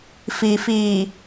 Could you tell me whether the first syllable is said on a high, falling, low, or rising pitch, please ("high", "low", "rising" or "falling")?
low